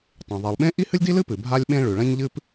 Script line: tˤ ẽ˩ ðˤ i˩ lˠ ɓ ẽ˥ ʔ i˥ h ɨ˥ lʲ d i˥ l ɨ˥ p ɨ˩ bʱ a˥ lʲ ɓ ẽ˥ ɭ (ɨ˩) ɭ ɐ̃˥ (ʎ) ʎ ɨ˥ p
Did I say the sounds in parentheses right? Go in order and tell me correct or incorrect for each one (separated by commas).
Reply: incorrect, incorrect